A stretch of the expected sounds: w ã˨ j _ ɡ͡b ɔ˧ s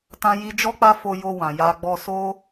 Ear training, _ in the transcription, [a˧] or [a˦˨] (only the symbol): a˧